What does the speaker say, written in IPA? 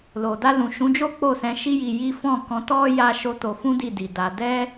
l o˨ d a˧ l ũ˨ ʃ ũ˨˦ d͡ʒ o˦ k͡p o˦˨ s ɛ̃˧ ʃ i˦ j i˧ j i˦ f ɔ̃˦˨ k ɔ̃˨˦ t ɔ˦ j a˦ ʃ o˦ t o˧ f ũ˦ d i˦˨ d i˨ d a˧ d ɛ˦

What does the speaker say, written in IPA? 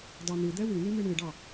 d ɑ n̪ ɨ d̪ ɛ w ɨ n ɨ m ɨ ɳ ɨ ɖ ɑ

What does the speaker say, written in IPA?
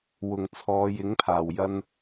w ʊ˨˩ ŋ t͡sʰ ɔː˨˧ j ɪ˨˥ ŋ pʰ aː˨˩ w j ɐ˧ n

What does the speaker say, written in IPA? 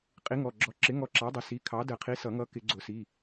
qʼ i˨˥ ŋ ɔ˩˧˩ ɡ͡ǁ ɔ˨˥ ǁ ɪ˨˥ ŋ ɔ˨˥ ǁ ɑ˨˥ dˤ ɪ˩˧˩ s i˨˥ kʰ ɑ˨˥ d ə˨˩˦ qʰ i˨˥ s ʌ˨˩˦ ŋ ʌ˨˥ k ɪ˨˩˦ ɡ͡ǀ ʊ˨˩˦ s i˩˧˩

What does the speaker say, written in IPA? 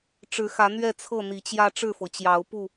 ʈ͡ʂ ɻ̩˨˦ x ä˨˦ n̪ ɥ ɛ˥˨ t͡sʰ ɤ˥˨ n̪ i˨˦ t͡ɕ j ä˦ ʈ͡ʂ ɻ̩˥˨ f ɤ˩ t͡ɕ j ɑ˨˦ ʊ̯ p u˥˨

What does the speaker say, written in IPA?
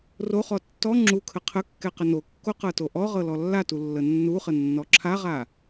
r o χ ɔ tː ɔ ŋ͡ǁ u kʰ ə qʰ ə kː ɛ q ə n o kː o q ɤ t o ʔ ɔ ʁ ɤ l ɔ lː a t u lː ə nː u χ ə nː ɔ ǁʰ a ʁ a

